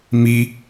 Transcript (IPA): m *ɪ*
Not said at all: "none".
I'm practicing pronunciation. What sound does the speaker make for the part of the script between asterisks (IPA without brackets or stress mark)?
i